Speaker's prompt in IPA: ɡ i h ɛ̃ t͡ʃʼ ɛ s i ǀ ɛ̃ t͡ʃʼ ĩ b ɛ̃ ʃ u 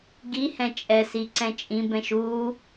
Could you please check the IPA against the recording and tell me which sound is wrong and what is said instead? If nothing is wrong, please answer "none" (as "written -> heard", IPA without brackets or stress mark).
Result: none